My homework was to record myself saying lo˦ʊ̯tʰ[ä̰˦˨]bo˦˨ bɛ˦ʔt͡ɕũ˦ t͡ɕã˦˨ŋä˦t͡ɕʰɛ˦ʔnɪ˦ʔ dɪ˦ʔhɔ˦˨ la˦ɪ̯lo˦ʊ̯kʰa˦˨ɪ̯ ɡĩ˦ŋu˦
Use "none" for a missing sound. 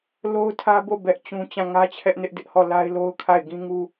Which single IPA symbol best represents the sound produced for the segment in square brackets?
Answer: ä˦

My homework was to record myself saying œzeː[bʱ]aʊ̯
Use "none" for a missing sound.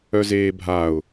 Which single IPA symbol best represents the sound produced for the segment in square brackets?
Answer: bʱ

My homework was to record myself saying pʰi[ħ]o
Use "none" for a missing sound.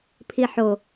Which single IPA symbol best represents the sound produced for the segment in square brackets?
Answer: ħ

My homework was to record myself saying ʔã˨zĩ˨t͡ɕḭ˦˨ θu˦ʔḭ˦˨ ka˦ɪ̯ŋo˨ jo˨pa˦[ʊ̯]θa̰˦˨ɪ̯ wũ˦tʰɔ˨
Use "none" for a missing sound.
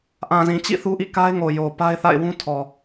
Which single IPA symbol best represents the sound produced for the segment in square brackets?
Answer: ɪ̯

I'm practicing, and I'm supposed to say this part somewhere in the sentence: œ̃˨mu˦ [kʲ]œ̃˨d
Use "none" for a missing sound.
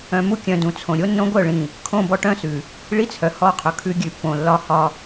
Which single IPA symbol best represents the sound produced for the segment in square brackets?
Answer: kʲ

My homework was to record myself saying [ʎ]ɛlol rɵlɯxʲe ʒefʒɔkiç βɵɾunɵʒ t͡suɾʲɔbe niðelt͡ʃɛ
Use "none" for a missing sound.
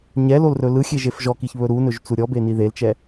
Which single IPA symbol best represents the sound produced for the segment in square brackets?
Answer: ɲ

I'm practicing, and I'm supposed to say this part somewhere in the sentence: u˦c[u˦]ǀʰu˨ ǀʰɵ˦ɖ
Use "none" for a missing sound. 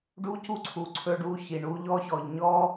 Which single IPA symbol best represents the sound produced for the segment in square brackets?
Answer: u˦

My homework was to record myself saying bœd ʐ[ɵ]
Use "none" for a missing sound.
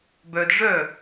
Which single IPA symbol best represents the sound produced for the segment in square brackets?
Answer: œ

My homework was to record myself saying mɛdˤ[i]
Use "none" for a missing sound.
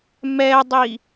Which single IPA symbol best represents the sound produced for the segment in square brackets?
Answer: i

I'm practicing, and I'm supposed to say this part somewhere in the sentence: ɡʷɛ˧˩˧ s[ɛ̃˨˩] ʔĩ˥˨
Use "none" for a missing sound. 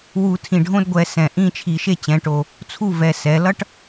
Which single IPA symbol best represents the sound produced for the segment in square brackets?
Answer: ɛ̃˨˩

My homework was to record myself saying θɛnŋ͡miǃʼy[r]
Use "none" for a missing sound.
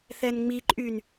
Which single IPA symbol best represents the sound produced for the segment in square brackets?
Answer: n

